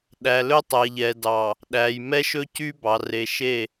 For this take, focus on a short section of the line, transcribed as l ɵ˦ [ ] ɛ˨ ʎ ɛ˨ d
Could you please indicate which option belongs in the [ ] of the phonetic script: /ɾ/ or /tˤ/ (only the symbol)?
tˤ